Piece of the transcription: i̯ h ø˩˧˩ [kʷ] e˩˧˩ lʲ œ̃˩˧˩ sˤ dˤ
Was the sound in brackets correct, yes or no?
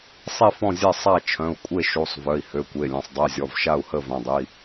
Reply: yes